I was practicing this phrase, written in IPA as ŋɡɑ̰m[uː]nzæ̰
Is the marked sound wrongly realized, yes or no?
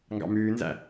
yes